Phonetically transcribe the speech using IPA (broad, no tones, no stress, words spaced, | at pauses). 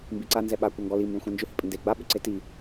mbiǀa nzɛɓa kʷaŋɡɔli mbɛ̃xʷɛ̃nd͡ʒʏ hɪpʼɪnde ɡ͡ba ɓʏǀeti